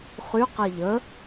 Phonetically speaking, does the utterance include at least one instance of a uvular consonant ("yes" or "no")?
yes